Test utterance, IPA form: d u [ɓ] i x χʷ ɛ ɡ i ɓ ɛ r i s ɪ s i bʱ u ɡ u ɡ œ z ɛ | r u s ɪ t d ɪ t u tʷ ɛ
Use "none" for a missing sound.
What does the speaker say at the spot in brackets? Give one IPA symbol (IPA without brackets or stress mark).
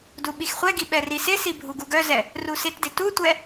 ɓ